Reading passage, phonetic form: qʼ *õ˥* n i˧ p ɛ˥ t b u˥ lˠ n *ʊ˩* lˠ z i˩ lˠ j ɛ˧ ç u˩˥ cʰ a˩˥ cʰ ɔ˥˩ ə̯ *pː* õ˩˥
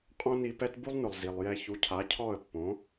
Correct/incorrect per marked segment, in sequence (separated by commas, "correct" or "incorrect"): correct, correct, correct